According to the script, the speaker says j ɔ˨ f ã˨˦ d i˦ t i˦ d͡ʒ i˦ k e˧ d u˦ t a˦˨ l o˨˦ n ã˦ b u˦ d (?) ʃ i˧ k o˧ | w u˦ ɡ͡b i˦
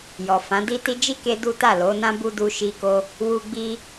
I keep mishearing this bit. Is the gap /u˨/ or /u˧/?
u˧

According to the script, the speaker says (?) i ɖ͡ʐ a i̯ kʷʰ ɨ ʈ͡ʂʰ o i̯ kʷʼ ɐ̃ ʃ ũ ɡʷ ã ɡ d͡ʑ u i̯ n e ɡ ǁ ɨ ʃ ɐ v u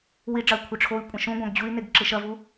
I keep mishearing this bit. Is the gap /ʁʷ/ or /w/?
w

